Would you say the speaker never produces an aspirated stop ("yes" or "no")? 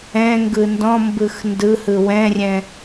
yes